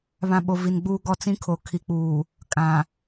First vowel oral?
no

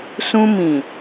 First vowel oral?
no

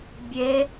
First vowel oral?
yes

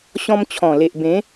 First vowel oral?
no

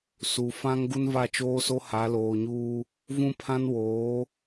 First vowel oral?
yes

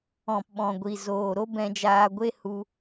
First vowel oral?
no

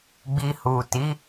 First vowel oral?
yes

